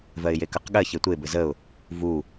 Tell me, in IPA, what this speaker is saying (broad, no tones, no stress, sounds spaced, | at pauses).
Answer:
v ɜ ɪ̯ j e k ə q ɠ ɜ ç e tʷ e b ɘ z ə ʊ̯ | v u